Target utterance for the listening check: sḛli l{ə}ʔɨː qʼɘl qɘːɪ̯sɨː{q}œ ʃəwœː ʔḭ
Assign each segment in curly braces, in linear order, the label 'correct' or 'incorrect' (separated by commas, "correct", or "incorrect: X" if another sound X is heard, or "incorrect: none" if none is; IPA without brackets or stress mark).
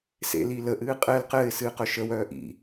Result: correct, correct